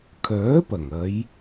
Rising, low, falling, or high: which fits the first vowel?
rising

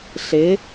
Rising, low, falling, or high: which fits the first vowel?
rising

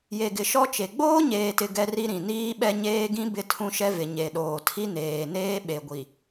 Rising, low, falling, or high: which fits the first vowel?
low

